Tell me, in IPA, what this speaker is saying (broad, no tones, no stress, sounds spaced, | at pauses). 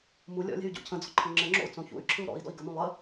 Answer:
m u lʲ ɔ̰ lʲ ɛ̤ y̯ ɟ o̰ cʰ ə̃ d͡z ɔ̤ ǃʰ ə ŋ͡ǁ ɘ ŋ͡ǁ o̰ u̯ t͡s õ ç ṵ y̯ ǁʰ ɯ u̯ ɾ ɔ̰ i̯ d ɔ̰ i̯ ɡ ə m ũ lˠ ə